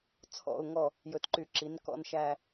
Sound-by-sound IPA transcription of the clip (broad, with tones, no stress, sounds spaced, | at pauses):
t͡sʰ ɔ̰˨˩ ʊ̯ ŋ ɔ˨˩ | j ɵ˨˩ t ǃ y˧˩˧ ǁ i˩˧ n k ɔ̰˨˩ n ʃ æ˨˩